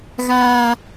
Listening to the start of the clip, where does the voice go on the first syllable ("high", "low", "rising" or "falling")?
low